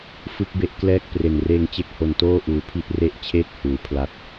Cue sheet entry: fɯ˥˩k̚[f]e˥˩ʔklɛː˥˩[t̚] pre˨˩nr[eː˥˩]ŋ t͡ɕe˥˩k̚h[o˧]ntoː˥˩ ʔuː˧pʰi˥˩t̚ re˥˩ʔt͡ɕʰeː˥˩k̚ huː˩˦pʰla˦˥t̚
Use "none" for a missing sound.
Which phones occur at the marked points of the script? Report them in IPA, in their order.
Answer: b, k̚, eː˧, o˧

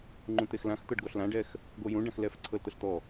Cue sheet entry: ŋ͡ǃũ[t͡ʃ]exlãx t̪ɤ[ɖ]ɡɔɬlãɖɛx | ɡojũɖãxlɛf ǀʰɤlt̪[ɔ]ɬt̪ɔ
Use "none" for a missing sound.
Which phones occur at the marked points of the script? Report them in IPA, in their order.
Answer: t̪, ɖ, ɤ

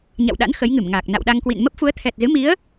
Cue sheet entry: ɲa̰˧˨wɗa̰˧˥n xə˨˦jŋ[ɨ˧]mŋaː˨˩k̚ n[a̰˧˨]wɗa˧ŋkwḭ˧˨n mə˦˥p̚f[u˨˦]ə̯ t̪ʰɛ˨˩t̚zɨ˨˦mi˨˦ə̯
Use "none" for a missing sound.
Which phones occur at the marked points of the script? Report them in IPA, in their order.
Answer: ɨ˧˩, a̰˧˨, u˨˦

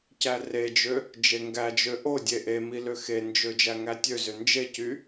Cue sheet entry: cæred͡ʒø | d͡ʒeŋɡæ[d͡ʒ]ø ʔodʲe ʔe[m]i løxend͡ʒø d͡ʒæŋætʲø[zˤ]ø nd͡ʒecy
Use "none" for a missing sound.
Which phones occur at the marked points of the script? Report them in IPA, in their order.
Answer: d͡ʒ, m, z

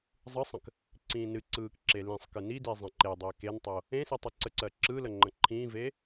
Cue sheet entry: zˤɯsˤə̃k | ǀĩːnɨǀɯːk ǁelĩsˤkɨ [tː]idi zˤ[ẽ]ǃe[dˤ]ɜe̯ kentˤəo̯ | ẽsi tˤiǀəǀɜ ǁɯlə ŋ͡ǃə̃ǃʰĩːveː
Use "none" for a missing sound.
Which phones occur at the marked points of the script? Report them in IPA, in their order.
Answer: n, ẽ, dˤ

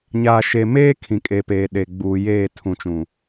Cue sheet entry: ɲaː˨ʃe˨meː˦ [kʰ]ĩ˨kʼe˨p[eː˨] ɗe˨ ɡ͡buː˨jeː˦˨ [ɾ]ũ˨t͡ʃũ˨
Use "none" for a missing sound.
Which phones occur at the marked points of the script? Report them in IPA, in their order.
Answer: kʰ, eː˨, tʰ

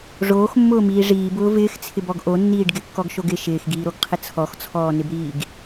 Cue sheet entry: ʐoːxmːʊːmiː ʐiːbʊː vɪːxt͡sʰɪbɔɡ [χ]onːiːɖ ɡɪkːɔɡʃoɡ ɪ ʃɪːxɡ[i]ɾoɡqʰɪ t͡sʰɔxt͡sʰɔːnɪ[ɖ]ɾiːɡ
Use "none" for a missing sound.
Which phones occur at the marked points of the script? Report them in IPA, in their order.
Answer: ʔ, iː, b

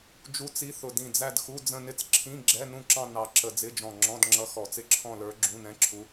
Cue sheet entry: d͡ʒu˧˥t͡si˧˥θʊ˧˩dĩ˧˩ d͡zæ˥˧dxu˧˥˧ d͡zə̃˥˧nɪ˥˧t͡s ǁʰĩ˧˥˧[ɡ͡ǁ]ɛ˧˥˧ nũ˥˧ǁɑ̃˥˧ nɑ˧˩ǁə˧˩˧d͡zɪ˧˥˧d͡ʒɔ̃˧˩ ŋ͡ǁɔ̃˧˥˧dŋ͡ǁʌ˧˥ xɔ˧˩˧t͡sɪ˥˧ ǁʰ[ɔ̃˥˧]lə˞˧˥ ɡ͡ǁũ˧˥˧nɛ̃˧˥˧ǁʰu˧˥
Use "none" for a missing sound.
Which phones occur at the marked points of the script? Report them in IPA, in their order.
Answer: ɡ͡ǁ, ɔ̃˥˧

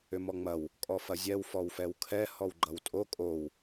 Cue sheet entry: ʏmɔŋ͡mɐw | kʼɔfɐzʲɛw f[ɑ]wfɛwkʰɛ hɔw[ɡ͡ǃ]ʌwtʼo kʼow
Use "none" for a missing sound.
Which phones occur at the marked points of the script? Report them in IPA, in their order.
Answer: ɔ, ɡ͡ǃ

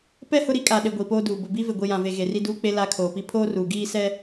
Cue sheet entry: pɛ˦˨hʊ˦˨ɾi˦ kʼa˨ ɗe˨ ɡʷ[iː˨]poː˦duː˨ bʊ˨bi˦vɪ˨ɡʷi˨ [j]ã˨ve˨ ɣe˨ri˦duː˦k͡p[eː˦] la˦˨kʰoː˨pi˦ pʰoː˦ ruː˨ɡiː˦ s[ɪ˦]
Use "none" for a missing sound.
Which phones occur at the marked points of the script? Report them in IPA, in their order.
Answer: iː˨, j, e˦, ɛ˦

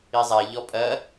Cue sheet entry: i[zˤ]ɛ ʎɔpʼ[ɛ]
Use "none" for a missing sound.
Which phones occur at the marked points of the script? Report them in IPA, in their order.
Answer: zˤ, ɜ

